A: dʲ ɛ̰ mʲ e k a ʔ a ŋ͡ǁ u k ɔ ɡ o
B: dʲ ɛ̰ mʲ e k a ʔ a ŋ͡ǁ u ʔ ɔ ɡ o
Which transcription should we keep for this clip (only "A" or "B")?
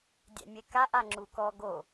A